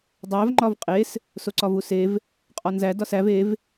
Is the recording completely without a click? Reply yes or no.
no